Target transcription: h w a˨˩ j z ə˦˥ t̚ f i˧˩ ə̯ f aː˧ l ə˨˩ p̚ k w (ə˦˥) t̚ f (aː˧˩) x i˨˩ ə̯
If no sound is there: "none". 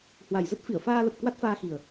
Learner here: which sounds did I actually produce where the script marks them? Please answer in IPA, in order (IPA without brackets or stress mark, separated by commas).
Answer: a˦˥, aː˧